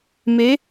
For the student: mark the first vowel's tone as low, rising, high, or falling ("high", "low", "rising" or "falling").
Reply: rising